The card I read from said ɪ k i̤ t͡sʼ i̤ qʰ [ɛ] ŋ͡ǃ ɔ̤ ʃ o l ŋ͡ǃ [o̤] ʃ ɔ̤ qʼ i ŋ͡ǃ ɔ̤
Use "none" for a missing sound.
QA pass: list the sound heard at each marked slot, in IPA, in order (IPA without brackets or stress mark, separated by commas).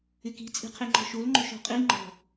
e, o̤